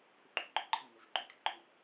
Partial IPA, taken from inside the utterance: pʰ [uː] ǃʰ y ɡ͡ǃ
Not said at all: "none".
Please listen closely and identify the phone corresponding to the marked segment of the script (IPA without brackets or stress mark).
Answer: u